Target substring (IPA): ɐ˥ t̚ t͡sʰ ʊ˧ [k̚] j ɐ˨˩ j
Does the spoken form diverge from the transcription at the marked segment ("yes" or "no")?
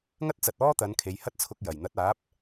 no